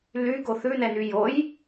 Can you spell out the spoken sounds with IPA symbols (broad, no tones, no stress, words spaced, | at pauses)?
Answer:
lyɡo θʉnɛny joj